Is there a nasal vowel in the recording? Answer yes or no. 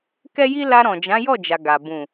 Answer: yes